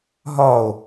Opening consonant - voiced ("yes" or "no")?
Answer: yes